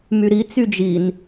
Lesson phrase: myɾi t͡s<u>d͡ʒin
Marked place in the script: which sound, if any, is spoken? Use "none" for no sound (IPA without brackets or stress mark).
y